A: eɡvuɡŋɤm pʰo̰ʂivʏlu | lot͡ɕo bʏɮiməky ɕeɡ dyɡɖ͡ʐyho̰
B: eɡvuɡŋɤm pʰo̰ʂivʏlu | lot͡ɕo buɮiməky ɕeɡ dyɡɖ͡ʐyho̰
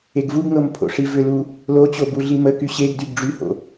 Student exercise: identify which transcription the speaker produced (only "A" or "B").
B